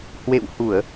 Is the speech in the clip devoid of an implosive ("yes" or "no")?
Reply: yes